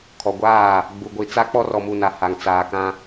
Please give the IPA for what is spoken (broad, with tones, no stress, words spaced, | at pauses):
kʰɔ˨ɡʷaː˦˨ | ɡ͡bu˨ɡʷi˨ t͡sa˦ k͡pɔ˦rɔ˨mu˨na˨ ha˨ŋt͡saː˨kã˦